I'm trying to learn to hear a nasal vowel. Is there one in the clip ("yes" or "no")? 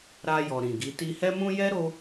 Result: yes